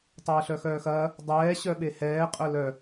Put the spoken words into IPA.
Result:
tˤ eː ɬ œ x œː x ɐː | dˤ ɛː ɕ œ ɓ e h ɛː qʼ œ l œ

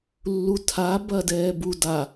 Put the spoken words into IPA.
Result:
lː u tʰ a b ɐ d ɛː b u d a

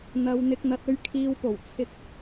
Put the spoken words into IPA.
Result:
n̪ ɐ˨ w n̪ ɪ˨ k̚ n̪ ɐ˨ t̚ ɵ˧ ɥ kʰ iː˨ w p o˨˩ w t͡sʰ ɪ˧ k̚

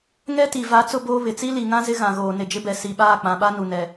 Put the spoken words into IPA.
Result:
ŋ ɛ˦ t i˨ v a˨˦ t͡s ʊ˦ b oː˦ β ɪ˨ t͡s i˦ l i˨ ŋ ã˦ z ɪ˦ ɣ ã˨ ɣ oː˨ n ɪ˨ d͡ʒ ɪ˦ b ɛ˨ s i˨ ɓ aː˦˨ k͡p ã˨ ɓ a˦ n u˨ n ɛ˨

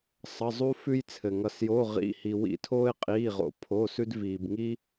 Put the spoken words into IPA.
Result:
sˤ ʌ˩˧˩ zˤ u˧ f ʉ˧ j t͡sʰ ɘ˩ ŋ ʌ˩ s j o˩˧˩ ʁ ḭ˩˧˩ h i˩ w ḭ˧˩˧ tʰ oː˧ ɪ̯ qʼ iː˩˧˩ ʁ o̰˩ pʰ o˩˧˩ s ʉ˧ d v iː˩ b ŋ i˧

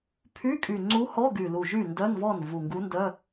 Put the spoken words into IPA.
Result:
pʰ y˧˥˧ kʼ y˨˩ ŋ͡ǀ u˧˥ h ɔ˧˥˧ ɡ y˨˩ l u˨˩ ʒ y˥˩ n d œ˧˥˧ n v ɔ˥˩ n v u˨˩ ŋ ɡ u˧˥ n d œ˧˥˧

